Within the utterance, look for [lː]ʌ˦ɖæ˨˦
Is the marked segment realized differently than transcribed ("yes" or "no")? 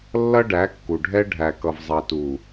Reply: no